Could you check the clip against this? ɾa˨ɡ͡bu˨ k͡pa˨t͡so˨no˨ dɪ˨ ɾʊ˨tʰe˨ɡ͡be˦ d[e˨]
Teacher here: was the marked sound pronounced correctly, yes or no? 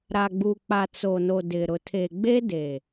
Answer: yes